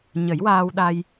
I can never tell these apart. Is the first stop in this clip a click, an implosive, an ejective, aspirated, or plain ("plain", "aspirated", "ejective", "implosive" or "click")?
implosive